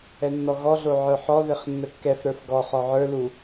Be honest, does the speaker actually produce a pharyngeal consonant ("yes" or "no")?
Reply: yes